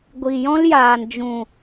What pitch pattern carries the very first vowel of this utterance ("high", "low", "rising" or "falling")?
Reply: low